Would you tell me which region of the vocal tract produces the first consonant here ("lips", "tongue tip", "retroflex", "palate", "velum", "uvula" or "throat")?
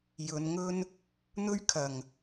palate